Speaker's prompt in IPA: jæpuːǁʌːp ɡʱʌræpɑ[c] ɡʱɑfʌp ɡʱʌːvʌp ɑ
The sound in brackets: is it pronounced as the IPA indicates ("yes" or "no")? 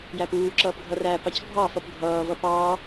yes